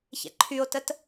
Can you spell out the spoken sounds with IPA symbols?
ç ɛ̰ ǃʰ y o̯ t ə t

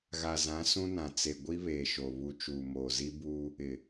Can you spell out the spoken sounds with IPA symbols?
ɣ a˨ z ã˨˦ s ũ˦ n ã˨ t͡s e˨ ɡʷ i˦ β eː˨ ʃ o˨ β u˨ t͡ʃ uː˨ m oː˨ z i˦ b uː˦ | ɪ˨

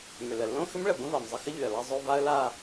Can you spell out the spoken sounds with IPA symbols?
m ʏ˩ l ə˩ lː õ˥˧ x ʏ˥ m ɭ ə˩ b ə̃˥ v a˩ m zˤ ə˥˧ x ə˥ ʎ ʏ˩ ə̯ l a˥˧ zˤ o˥˧ v a˥ ə̯ l a˥˧

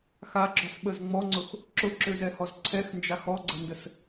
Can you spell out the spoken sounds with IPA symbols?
x a ɡ͡ǁ ɔ s ɓ ə z ŋ͡m ɔ ŋ͡ǀ ʊ x | ǁ ʊ ǁ ø z ɛ h ɔ z ǀʰ ɛ x n d͡ʒ a x ɔ ɡ͡ǀ ə n d ə s

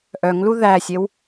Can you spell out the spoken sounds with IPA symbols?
ʔ œ ŋ l u ð æ sʲ e w

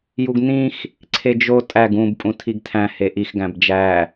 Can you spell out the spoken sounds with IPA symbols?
j u ɡ n ĩ x | ǀʰ e d͡ʒ o tʼ æ ɡ ũ b pʼ ũ tʰ i ɡ tʰ æ̃ h e ʔ i x ɡ æ̃ b d͡ʒ æ

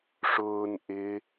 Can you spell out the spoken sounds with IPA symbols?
ʂ ʊː n ʔ ɪ

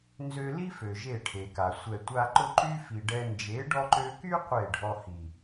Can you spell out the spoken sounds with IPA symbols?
n z ø˧ l i˦ f ø˨ ʒ e˦˨ ʈʰ e˨ k a˨ sʷ ɛ˨ tʷ a˧ ǃ ʊ˦ ǃ y˦ f i˨ ɖ ɛ˧ n d͡ʒ e˨˦ ɖ ɔ˧ ǃ ø˧ k y˦ qʷ e˦˨ ɖʱ ɔ˧ h i˨

